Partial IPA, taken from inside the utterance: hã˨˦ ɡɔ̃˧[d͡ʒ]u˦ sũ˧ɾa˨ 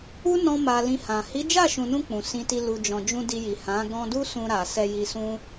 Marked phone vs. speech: incorrect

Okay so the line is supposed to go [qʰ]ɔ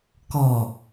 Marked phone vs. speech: incorrect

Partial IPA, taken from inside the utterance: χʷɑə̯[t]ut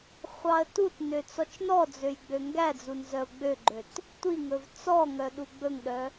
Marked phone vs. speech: correct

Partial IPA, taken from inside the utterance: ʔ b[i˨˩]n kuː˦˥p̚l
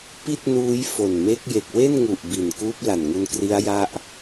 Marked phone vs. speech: correct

